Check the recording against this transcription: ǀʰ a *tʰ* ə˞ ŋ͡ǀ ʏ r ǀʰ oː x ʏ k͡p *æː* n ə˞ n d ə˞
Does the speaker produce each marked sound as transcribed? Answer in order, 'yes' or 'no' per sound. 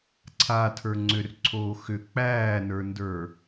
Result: yes, yes

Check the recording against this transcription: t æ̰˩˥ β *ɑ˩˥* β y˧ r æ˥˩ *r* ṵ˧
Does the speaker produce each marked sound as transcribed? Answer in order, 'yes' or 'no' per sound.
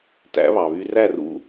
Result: no, yes

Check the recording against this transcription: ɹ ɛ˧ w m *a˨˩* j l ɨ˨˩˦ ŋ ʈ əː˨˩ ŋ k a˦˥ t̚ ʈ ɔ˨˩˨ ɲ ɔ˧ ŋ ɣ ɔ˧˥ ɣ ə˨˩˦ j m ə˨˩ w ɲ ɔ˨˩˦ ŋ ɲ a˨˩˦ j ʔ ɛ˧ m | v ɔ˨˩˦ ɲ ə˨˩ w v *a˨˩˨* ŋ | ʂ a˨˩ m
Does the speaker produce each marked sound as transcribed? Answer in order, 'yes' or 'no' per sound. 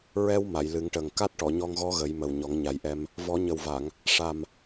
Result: no, yes

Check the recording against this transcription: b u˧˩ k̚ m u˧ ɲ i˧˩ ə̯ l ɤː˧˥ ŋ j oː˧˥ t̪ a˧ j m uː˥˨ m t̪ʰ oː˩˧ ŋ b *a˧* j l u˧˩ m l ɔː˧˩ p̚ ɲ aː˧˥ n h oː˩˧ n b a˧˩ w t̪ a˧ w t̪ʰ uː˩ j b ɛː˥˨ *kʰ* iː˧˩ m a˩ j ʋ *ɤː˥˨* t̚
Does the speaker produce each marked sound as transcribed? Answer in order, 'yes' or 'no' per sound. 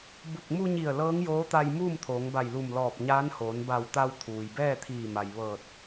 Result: no, no, no

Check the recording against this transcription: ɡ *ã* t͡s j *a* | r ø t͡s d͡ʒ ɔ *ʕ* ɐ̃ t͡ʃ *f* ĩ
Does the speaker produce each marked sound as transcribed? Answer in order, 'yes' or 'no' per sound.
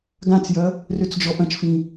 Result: yes, no, no, yes

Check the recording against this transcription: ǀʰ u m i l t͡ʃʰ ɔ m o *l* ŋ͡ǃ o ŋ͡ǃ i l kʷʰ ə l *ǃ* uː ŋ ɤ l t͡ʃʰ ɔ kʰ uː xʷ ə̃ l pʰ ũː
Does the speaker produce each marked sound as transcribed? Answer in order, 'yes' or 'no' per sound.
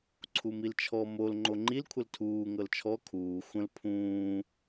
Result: yes, no

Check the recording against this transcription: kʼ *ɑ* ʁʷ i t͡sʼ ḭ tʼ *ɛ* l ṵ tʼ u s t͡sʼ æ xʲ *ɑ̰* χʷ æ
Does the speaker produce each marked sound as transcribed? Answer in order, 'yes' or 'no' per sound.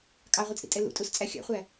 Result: yes, yes, yes

